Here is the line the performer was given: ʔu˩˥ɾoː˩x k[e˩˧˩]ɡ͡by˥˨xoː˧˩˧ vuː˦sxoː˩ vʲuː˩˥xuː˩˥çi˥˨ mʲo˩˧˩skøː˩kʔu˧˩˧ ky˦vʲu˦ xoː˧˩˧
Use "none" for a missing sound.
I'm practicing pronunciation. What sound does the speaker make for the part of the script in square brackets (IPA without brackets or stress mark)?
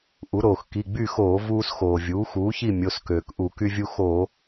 i˩˧˩